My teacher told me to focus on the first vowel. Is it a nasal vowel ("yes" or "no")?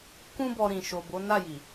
yes